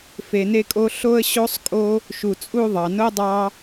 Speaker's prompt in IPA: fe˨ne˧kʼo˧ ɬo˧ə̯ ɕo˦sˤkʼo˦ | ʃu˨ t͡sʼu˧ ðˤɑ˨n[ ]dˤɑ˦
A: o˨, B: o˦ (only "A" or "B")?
B